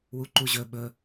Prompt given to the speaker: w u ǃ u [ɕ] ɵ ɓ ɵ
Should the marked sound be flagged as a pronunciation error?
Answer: yes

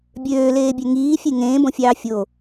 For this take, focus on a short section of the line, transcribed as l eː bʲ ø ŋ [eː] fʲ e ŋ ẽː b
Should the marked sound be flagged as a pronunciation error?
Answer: yes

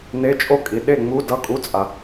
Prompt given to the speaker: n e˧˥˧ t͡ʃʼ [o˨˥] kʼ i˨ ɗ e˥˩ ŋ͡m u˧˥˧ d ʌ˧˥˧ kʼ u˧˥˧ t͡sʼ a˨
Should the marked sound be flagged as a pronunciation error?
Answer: yes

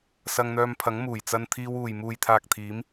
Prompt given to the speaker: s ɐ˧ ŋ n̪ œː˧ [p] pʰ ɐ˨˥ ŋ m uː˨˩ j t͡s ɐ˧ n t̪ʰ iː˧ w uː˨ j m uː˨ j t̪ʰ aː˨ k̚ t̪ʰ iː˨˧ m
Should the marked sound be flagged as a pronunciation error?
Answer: yes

